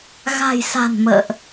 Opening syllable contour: low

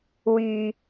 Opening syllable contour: low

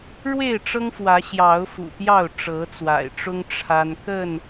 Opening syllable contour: falling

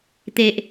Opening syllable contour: low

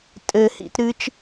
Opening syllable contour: low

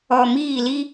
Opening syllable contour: low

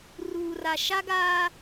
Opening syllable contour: low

